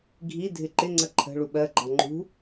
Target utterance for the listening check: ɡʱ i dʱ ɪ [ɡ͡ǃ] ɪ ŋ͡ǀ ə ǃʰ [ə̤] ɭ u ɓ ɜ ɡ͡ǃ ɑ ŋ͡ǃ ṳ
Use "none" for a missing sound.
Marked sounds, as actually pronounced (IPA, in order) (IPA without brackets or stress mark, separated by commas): ǃ, ə̤